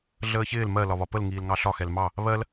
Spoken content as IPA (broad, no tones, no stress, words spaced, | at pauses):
ɮəːçɪːl mɜ lɒβɒpəl ŋiːlŋɑɬɒ xɛlmɑ | βɜl